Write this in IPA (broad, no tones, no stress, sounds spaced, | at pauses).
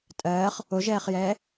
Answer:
tʼ ɜː χ | o ʒ ɛː χ j ɛː